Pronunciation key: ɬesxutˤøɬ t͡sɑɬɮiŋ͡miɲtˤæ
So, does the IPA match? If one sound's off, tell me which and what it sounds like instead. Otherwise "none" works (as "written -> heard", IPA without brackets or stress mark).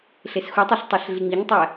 t͡s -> tˤ